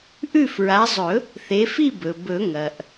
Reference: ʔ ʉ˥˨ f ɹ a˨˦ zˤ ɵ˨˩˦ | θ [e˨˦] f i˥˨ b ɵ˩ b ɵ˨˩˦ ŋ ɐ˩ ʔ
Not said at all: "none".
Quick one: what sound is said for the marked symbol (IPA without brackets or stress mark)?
e˨˦